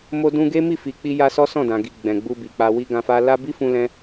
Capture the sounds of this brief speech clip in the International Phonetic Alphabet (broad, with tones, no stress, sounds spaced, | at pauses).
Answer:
m o˧ d ũ˧ ɡ e˦ m i˦˨ f i˨ k͡p i˧ j a˧ s ɔ˦ s ɔ̃˦˨ d ã˨ ɡ i˨ ɡ͡b ɛ̃˨ ɡ͡b u˧ b i˨ k͡p a˧ w i˦ ɡ ã˧ f a˦ l a˦ b i˦ f ũ˧ l ɛ̃˧